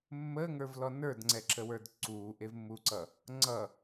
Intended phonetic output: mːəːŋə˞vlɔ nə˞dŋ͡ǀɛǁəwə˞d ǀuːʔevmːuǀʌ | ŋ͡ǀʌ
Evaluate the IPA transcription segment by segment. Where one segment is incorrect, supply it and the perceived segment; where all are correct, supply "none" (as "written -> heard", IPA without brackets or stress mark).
none